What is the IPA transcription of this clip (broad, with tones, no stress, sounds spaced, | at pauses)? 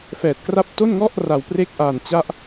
f ɛː˨˩ t̚ k r a˦˥ p̚ t o˥˩ n ŋ ɔ˥˩ ʔ r a˨˩ w p r e˦˥ k̚ ʔ aː˨˩ n t͡ɕ a˥˩ ʔ